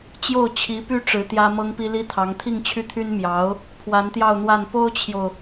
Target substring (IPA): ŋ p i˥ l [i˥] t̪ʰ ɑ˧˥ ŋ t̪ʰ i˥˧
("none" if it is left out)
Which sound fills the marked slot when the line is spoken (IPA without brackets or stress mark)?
i˥